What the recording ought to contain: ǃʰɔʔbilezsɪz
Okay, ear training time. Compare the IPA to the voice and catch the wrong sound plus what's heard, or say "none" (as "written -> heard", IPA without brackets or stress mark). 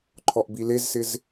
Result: none